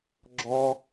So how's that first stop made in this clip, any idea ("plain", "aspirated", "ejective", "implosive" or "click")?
click